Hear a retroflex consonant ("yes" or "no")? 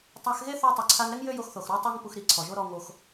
no